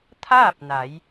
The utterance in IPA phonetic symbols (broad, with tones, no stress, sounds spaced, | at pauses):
t̪ʰ aː˥˨ p̚ n a˩˧ j